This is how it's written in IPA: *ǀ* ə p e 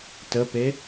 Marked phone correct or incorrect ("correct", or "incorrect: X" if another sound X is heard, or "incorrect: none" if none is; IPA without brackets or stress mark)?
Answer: incorrect: t